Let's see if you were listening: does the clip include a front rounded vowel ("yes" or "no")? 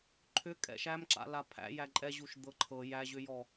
yes